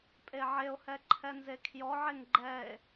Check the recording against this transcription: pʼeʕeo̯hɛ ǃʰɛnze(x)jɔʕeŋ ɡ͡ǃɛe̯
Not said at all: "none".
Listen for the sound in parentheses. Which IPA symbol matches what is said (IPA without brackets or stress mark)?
kʰ